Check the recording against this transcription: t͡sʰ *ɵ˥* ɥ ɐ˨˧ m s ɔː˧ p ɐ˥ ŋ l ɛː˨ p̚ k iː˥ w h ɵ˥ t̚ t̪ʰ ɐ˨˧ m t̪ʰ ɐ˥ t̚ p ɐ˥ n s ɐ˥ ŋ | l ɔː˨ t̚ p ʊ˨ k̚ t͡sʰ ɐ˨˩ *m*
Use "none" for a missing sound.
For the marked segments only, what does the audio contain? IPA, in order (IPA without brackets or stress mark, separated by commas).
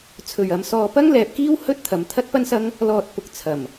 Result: ɵ˨, m